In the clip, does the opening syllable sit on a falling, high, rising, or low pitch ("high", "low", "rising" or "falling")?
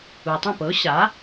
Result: low